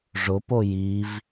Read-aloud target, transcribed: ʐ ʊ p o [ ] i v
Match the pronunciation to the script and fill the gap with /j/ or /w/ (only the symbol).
j